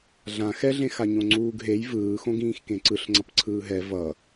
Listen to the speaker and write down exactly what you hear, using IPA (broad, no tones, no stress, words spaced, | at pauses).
ɮã xɛɮẽ xaɲõŋ͡ǀuːɡɦej vɯːxõɡ ĩːxkẽǀɯɬŋ͡ǀʌp ǀʰɯːɦɛ vʌ